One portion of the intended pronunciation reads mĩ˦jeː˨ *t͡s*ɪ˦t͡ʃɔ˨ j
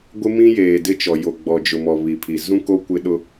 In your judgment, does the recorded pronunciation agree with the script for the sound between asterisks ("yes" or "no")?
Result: no